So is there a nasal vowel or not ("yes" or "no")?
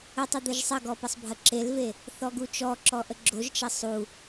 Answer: no